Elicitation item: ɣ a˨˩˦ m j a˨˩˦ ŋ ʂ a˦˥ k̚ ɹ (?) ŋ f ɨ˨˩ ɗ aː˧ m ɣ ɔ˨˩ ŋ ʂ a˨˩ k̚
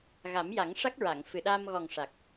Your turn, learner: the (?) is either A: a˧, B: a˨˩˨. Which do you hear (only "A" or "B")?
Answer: B